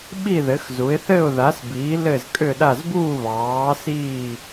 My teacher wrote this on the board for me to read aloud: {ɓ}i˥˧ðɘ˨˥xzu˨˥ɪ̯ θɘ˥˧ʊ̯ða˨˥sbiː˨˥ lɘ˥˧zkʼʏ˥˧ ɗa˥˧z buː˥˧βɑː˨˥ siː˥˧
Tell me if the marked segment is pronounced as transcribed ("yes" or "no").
yes